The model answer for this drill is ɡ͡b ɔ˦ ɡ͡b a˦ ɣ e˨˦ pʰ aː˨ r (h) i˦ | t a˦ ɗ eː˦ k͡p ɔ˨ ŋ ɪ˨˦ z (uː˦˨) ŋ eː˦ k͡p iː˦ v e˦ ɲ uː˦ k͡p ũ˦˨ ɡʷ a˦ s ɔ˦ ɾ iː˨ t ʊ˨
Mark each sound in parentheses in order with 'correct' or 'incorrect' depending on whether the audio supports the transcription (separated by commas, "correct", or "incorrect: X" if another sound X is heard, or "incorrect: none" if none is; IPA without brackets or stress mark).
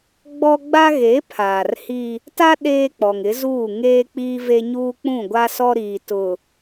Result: correct, correct